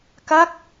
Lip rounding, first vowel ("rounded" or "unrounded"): unrounded